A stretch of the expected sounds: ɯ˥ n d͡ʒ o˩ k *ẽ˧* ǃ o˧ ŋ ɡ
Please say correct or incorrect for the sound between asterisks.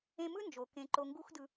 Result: correct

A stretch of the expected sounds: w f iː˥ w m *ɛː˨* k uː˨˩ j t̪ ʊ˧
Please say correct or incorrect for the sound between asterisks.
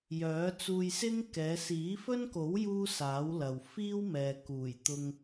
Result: correct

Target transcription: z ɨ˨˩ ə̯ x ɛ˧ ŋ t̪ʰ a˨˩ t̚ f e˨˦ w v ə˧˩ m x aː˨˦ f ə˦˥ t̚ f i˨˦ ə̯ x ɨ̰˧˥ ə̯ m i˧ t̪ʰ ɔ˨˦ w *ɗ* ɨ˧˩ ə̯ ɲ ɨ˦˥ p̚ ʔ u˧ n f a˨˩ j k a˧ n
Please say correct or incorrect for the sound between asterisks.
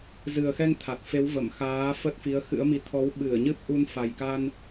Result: incorrect: ɓ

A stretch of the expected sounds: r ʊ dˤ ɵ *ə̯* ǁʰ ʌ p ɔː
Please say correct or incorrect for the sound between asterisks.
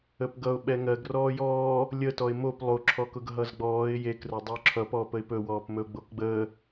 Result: incorrect: ʊ̯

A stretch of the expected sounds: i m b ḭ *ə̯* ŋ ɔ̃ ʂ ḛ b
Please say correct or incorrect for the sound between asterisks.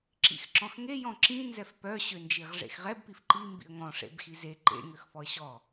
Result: correct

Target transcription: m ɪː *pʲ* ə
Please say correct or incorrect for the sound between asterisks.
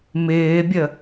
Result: incorrect: bʲ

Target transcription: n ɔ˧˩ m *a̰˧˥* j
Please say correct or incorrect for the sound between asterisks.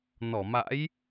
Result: correct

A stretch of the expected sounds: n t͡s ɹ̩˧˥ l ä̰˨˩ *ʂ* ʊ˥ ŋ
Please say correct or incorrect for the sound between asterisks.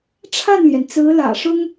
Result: correct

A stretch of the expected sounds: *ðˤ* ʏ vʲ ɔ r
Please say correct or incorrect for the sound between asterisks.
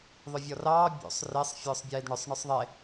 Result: correct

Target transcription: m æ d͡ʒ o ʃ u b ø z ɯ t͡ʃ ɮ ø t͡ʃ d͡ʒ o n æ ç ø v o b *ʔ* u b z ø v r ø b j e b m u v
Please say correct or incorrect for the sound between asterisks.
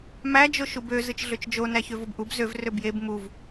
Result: correct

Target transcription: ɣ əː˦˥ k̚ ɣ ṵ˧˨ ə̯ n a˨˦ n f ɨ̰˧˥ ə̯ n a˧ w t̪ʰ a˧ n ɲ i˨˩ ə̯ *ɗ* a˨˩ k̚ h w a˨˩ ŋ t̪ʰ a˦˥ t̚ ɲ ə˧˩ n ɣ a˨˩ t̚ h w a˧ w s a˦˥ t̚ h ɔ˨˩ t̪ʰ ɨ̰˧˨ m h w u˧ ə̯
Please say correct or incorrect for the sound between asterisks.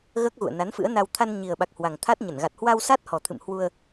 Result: incorrect: ɓ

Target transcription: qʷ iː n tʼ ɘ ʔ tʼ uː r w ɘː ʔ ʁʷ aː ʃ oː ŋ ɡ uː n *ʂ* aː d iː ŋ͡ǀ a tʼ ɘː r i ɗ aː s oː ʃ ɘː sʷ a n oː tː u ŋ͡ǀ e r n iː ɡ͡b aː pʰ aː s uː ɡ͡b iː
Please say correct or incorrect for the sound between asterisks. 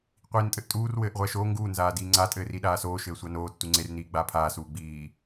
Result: incorrect: z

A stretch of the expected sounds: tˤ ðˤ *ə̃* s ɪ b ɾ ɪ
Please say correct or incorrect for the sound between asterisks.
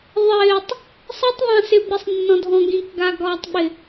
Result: incorrect: ã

